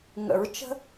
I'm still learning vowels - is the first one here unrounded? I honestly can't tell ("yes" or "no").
yes